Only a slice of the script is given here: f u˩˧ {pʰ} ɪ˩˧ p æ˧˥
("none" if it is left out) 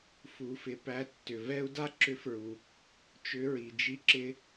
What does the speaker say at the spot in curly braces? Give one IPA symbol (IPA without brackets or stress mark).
f